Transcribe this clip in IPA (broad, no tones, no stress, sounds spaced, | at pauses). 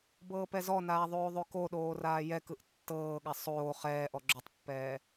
b ɤː p ɛ z ɔ n aː ðˤ oː ðˤ o k o ɗ oː r aː j ɛ k ɯ ʔ tː ɤː ɠ a sˤ oː χ ɛː ʔ ɔ ɡ͡ǁ o tˤ pː ɛː